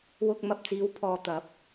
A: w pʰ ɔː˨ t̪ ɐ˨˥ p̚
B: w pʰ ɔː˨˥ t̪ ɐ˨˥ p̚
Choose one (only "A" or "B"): A